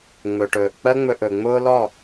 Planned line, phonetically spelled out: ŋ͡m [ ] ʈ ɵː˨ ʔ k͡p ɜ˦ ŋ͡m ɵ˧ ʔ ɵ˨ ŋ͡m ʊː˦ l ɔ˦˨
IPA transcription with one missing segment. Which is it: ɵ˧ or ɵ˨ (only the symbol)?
ɵ˨